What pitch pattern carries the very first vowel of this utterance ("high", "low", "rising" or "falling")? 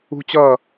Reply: high